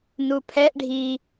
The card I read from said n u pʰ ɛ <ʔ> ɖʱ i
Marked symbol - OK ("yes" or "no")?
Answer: yes